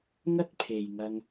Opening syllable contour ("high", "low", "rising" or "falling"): high